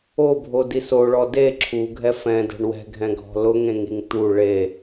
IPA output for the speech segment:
o bʱ o d i s o ɭ ɔ d e ǁʰ u ɡʱ ɛ f ɛ̃ d ɛ̤ ɳ w ɛ̤ ɡʱ ɛ̃ ɡʱ ɔ̤ l ʊ ŋ ẽ ŋ i ŋ t̪ u ɭ e

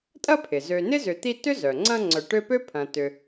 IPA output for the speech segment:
tʼ ɐ˦ pʰ ɪ˩ z ø˨ n ɪ˥ z ʏ˨ t̪ i˦ t ʏ˥ z œ˩ ŋ͡ǀ ɐ̃˦ ŋ͡ǀ œ˨ ʈ ø˦ p ø˥ pʰ ɐ̃˨ t ʏ˨

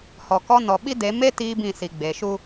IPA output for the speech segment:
h ɔ˨ k ɔ˦ n ɔ˨ ɓ i˦ d e˨˦ m e˦ t iː˦ b ĩ˦˨ s i˨ ɡ͡b e˨ ʃ u˦

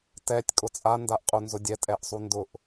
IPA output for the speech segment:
t ɛ tʲ kʼ ʊ t͡sʼ a n d a ʔ qʼ u n z ʊ dʲ ɛ tʼ ɛ ʔ sˤ u n d ʊ ʔ

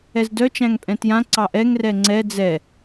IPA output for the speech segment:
ɛ z d œ t͡ʃ æ̃ ŋ pʼ ɛ̃ t j ã ǀ ɑ ʔ ɛ ŋ r ɛ ŋ͡ǀ ɛ d͡z ɛ

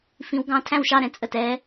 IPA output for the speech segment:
f ĩ˧˥ w ɡ ɑ̃˧˥˧ tʰ æ̃˥˧ w ʃ ɑ˥˧ ɾ ɛ̃˩˧˩ t͡sʼ ə˥˩ t ɛ˧˥

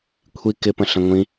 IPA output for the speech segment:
kʷʰ i k ɪ p ə̃ ɬ ə̃ ŋʷ ĩ

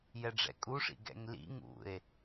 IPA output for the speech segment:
j ɛ ɖ͡ʐ ɛ̰ kʼ u ʂ ḭ ɡ ɛ̰ ŋ l ḭ ŋ ṵ e̯

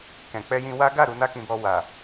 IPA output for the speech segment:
k ɛ̃˨ k͡p ɛ˧ j ĩ˧ w a˦ ɡ a˦˨ ɾ u˧ n a˦ k ĩ˧ b ɔ˧ w a˨

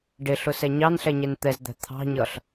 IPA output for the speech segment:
ɖ ɪ ɬ ʊ s ɛ ɲ ɑ n ɬ ɛ ɲ ɛ n t̪ ɛ z d̪ æ̤ t̪ʰ ɑ̤ ɲ ʌ ɬ

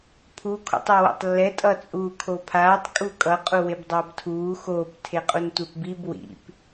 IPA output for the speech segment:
pʰ u kʰ o̰ tˤ a w o̰ tˤ lː ɛ tʼ ʌ t͡sʼ uː kʰ o pʰ aː tˤ kʼ u kʼ ʌ qʼ u w e b dˤ ʌː b tʰ uː x oː p tʰ e qʼ u n tʷ e p b i b w ḭ p

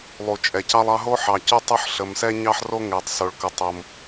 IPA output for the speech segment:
lˠ u˧ t͡ʃʼ ɛ˧ c ɑ˥ lˠ ɑ˥ ɦ o˥ ħ ɑ˧ c o˥ tˤ o˥ ħ ɬ ə˧ m s ɛ˥ ɲ ɑ˥ ħ r o˥ ŋ ɛ˧ tˤ s o˧ ɭ k ə˧ tˤ o˧ m

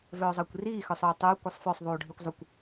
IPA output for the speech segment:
v œː zˤ əː kʷ r iː x œ sˤ ɵː tˤ ʊː kʷ ɛ sˤ f œ sˤ ðˤ uː ɖʱ i kʷ zˤ ʊ kʷ

